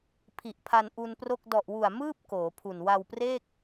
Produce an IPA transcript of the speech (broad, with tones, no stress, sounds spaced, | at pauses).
pʰ i˨˩ ʔ pʰ a˧ n ʔ u˧ n p r o˥˩ k̚ d ɔ˨˩ ʔ w u˨˩ a̯ m ɯː˥˩ p̚ k oː˩˦ pʰ u˨˩ n w a˧ w p r eː˥˩ k̚